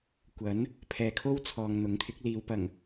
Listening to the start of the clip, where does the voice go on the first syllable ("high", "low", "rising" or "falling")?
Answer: rising